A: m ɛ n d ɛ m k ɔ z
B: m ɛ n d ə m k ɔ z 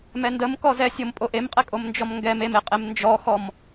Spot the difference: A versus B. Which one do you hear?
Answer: B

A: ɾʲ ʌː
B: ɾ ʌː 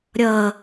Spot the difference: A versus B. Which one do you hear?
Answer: A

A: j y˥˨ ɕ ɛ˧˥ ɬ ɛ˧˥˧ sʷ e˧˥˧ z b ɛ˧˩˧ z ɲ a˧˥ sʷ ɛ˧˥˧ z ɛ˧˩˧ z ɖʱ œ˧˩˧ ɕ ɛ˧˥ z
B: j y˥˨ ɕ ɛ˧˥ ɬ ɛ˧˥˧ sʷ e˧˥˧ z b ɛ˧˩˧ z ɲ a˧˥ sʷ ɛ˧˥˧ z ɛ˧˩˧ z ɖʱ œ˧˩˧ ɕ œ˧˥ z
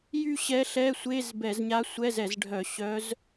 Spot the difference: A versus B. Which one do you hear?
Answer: B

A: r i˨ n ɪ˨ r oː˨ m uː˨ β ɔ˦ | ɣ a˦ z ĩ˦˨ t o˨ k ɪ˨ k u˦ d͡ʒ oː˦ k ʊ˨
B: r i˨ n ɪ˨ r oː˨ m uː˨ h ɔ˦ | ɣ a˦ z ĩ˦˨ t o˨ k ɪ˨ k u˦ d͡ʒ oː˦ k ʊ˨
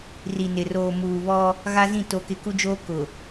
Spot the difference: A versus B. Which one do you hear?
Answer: A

